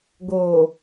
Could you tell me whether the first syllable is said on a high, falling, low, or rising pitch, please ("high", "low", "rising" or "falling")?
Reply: low